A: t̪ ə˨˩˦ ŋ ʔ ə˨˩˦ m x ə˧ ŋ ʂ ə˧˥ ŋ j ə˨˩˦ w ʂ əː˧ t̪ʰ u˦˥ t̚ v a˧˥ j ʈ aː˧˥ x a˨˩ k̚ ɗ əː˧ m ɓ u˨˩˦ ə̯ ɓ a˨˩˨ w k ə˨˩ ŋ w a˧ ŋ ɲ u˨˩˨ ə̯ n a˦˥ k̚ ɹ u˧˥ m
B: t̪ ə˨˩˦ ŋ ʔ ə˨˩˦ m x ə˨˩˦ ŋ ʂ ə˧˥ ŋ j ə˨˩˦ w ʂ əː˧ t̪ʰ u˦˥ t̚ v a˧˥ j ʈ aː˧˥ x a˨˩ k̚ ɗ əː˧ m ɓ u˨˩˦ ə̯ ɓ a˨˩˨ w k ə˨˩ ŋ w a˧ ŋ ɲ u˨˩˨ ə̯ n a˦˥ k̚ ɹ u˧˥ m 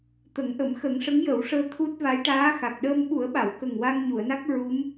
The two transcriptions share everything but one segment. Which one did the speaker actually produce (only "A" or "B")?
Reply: B